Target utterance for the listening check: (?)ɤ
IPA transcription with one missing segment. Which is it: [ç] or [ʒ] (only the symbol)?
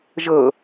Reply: ʒ